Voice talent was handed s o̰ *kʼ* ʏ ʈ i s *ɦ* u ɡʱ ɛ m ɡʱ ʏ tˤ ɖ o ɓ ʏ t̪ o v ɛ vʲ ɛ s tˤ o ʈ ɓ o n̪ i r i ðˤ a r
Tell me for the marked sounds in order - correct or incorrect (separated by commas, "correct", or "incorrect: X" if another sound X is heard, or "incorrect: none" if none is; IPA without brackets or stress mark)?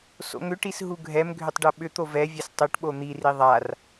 incorrect: ŋ, correct